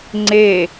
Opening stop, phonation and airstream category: click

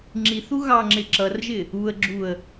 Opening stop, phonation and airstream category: click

